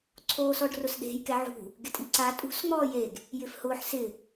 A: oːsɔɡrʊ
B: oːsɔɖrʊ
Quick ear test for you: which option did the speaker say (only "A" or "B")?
B